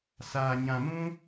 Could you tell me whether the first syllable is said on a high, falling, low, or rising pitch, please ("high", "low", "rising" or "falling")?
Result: low